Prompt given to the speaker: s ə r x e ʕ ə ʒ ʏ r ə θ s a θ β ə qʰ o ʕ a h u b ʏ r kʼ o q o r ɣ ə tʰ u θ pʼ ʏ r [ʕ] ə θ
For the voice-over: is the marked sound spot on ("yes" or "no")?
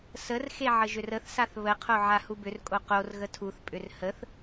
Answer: no